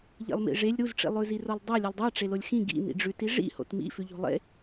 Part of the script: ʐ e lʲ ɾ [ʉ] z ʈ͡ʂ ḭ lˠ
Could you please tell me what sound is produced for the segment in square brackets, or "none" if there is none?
u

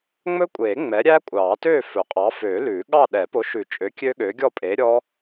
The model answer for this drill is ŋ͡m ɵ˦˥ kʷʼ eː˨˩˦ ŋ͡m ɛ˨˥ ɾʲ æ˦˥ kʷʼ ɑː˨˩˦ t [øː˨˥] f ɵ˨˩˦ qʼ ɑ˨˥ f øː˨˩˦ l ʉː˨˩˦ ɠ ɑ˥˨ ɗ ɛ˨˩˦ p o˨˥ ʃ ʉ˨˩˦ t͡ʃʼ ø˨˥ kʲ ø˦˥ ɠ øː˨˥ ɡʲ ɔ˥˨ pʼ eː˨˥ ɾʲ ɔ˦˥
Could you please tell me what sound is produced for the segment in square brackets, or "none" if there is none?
øː˥˨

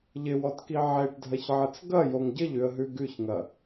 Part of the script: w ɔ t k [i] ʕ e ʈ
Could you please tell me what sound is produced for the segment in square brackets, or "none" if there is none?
i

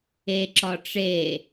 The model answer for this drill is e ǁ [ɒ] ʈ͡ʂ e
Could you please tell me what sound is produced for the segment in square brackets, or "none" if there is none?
ɒ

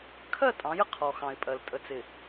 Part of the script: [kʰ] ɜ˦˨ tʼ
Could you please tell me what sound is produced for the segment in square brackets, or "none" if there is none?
kʰ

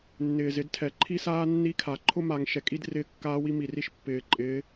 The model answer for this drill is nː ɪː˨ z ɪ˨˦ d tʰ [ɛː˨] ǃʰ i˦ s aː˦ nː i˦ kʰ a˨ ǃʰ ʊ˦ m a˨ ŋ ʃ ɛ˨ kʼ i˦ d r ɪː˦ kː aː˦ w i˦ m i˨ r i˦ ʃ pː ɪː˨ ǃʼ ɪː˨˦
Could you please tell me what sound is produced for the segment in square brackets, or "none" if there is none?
ɛ˨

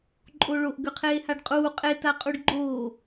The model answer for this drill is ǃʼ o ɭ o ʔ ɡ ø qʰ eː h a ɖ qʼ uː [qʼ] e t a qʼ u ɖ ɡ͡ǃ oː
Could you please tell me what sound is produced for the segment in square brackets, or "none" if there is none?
qʼ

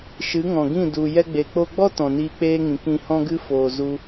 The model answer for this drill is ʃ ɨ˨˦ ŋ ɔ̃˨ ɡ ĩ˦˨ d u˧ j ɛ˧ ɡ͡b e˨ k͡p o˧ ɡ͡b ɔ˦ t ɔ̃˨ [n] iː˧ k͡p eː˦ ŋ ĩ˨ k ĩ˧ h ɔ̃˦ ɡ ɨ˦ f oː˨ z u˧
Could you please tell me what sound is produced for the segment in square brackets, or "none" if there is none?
n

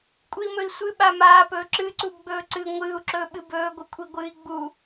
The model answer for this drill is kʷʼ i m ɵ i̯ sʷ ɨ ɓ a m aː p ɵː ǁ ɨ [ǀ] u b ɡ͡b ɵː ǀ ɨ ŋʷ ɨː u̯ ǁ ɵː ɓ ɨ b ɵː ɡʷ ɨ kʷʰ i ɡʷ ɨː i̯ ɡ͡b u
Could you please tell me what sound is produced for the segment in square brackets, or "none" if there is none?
ǀ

